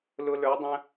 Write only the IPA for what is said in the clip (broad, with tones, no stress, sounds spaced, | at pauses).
l ʊ˥ l ə˞˧˥ dˤ ə̃˥